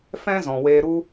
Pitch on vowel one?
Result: high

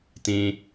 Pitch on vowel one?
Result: low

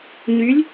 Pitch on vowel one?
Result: rising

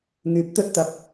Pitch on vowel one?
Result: rising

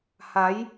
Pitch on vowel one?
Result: rising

